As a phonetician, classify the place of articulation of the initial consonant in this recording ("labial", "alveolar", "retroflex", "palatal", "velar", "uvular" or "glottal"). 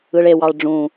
retroflex